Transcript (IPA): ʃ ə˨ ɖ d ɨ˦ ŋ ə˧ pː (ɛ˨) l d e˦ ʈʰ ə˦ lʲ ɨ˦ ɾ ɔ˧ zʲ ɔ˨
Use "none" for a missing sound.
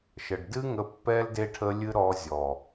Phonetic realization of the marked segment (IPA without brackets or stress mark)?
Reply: ɛ˦